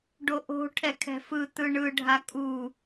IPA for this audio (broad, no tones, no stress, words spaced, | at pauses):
ɖoʔo̤ ʈʰɛkʰɛ̤fɯ t̪ɯɳɯ ɖʱakʼu